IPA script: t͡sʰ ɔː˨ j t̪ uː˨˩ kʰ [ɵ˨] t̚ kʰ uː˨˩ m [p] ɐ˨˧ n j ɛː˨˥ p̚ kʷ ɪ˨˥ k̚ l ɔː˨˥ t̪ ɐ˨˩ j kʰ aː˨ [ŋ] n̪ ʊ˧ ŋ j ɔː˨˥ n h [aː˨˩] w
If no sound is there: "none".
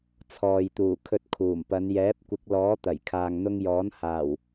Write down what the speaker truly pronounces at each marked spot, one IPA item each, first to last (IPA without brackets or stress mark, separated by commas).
ɵ˧, p, ŋ, aː˨˩